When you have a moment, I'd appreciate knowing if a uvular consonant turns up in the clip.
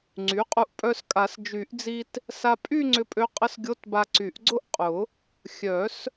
yes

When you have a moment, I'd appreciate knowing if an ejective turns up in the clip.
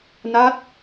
no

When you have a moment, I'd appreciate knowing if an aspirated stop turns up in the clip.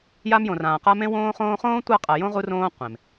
no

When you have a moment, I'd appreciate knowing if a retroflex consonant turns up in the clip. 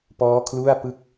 no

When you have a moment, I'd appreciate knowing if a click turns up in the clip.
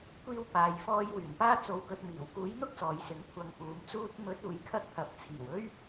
no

